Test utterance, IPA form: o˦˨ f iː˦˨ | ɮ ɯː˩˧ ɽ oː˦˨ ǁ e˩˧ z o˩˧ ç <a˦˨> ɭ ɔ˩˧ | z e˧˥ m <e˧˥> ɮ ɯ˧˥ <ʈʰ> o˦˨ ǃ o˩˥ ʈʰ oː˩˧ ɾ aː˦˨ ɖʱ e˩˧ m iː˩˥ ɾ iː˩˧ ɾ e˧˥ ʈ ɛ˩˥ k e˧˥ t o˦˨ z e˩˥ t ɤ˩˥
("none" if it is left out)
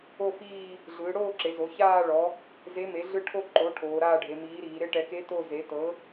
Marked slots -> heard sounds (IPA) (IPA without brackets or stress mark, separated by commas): aː˦˨, e˩˥, ʈʰ